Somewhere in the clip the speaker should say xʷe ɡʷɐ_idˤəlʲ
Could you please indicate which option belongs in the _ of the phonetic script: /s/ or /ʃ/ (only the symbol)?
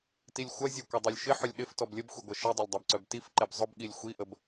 ʃ